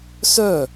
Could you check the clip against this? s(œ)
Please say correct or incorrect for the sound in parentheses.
correct